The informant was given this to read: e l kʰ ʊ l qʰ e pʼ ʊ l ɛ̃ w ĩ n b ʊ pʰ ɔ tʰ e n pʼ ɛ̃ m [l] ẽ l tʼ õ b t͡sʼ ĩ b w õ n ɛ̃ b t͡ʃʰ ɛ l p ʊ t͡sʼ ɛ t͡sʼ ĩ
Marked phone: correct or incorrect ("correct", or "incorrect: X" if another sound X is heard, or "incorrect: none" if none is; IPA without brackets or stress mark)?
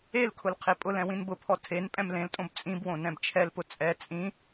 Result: correct